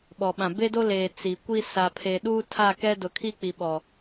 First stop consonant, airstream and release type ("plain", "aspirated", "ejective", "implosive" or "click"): implosive